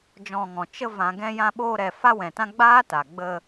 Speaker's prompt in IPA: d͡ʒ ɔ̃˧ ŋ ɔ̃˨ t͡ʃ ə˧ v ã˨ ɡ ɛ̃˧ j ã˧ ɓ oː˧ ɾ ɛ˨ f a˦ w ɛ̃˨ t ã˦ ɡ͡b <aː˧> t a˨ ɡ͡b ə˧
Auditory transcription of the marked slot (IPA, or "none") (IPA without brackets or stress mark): aː˦